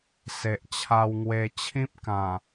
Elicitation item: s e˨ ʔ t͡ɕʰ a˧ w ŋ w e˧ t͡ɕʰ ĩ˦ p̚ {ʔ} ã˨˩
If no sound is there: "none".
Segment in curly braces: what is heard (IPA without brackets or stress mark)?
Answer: k